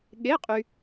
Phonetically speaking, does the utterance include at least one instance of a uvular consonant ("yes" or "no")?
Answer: yes